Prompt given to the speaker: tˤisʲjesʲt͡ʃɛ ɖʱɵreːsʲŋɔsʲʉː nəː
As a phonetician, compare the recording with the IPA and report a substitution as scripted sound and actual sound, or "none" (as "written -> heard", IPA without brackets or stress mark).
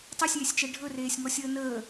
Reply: ʉː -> əː